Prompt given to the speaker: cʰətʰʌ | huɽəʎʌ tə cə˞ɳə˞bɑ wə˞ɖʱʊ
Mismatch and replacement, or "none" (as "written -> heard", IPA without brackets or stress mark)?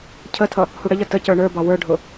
none